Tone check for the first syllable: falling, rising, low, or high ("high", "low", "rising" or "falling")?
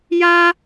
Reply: high